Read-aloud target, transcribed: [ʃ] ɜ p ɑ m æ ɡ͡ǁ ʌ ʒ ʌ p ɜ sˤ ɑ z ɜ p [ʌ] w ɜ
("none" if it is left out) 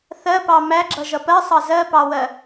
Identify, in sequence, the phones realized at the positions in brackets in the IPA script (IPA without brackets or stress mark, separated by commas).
θ, ɑ